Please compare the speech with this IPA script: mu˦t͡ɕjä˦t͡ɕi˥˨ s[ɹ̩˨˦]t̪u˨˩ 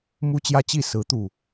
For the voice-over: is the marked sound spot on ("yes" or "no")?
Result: yes